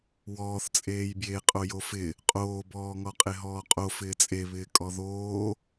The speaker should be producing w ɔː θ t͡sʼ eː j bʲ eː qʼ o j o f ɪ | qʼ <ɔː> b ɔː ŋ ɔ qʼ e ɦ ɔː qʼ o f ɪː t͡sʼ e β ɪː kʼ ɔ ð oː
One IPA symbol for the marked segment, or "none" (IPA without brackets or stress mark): oː